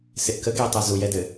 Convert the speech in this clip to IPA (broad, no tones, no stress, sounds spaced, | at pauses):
s ɪ ʔ k ə ɡ ɛ tˤ a z u j ɛ d ɘ